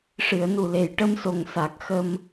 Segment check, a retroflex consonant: present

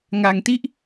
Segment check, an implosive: absent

